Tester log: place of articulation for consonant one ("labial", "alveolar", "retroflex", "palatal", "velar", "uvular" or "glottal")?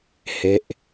glottal